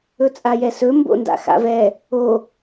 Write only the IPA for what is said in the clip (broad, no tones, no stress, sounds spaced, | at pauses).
ɵ t͡sʼ a j ɛ s ɵ m b o̰ n d a̰ x a̰ v ɛ | o